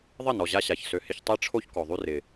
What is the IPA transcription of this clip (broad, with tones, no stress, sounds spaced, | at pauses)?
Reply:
ðˤ ɪ˦˨ n ɔ˨ ʑ a˧ ɕ a˨ ç s ø˨ h ɪ˧ ç tˤ e˦ ʈ͡ʂʰ o˦ ç k ɔ˨ ðˤ y˦ r ɪ˨